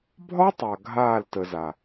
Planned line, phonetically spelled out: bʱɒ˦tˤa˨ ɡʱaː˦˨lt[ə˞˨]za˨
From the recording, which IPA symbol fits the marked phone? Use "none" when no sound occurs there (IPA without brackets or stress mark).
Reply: ə˨